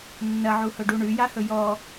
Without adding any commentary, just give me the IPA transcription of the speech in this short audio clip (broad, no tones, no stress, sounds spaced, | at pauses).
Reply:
nː ɐ ʕ u h ɵ ɖ u ɳ ʉ j a h ɵ j ɔ